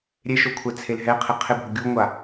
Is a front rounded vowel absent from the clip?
yes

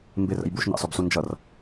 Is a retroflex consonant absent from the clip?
yes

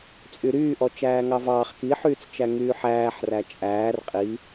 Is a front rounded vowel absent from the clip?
no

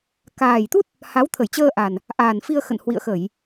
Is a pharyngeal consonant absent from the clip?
yes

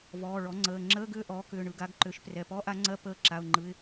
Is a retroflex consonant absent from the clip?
no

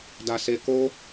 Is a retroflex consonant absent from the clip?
yes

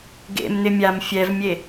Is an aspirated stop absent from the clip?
yes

